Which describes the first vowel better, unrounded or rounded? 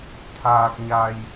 unrounded